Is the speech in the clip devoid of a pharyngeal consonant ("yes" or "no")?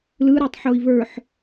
no